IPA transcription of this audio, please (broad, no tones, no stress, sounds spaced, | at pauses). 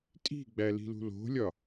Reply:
tʼ i̤ ɡ͡b æ l i̤ l ṳ l o̤ lʲ ɒ